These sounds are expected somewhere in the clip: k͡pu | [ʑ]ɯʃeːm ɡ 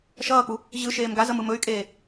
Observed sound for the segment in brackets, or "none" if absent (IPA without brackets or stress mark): ʑ